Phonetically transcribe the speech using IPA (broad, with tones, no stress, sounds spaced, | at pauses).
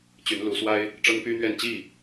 t͡ɕ y˨˦ n l u˨˦ s w a˦ ɪ̯ | ʈ͡ʂ ɤ˦ ŋ p y˦ n̪ ɥ ɛ˥˨ n t͡ɕ i˥˨